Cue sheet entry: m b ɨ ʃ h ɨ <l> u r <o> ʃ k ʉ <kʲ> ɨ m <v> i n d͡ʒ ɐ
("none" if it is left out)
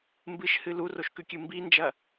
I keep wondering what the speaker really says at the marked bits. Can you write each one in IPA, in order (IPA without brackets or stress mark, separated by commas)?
l, o, kʲ, b